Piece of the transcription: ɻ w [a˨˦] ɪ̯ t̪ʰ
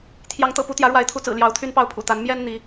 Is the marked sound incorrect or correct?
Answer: correct